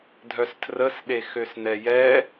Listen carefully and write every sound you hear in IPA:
dʱœstʰrəsɗe xøsnɛjɛ

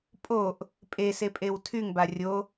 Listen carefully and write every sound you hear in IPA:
pʼoʔ | pʼesepʼew tʰyŋba rʲo

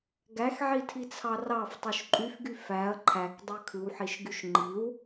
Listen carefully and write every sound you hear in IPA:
ɡæxʕitʰit͡sʰɑ rɑftˤuʃ ǃʼyfɡy fæɐ̯ ǃʰækdˤø kʰɯwħiʃɡyʃ ŋ͡ǃiw

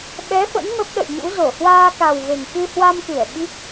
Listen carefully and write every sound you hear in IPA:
ɓɛ˨˦fə̰˧˥n mə˦˥p̚ɗə̰˧˨jɲṵ˧˥ zo˧˩hwaː˧ka˨˩w ve˨˩ŋkɨ˧hwa˧mkɨ˧˩ə̯ ɓi˦˥k̚

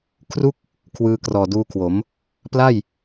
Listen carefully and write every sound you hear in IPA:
kʰru˥˩k̚ | kʰwɯː˧krɔː˨˩duː˧kʰwo˩˦m | pla˥˩j

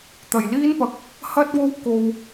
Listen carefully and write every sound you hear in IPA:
t̪ɐ˨˩jliː˥npɐ˨˥k̚ | hɐ˥t̚wo˥wko˧w

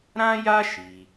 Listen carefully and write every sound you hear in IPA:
ɾã˦ja˦ ʃi˧

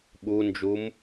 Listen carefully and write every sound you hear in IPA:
ɓund͡ʒum

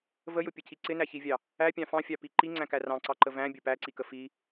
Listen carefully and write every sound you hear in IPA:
vəjʊpʲəcʰi ǀɪnæçivʲɑ | æpʲɑ̃ fɑ̃fʲɑpi ǃiŋ͡ǀæ̃kæ rɑ̃ǀɑǃə væ̃bʲə pæǀikə fi

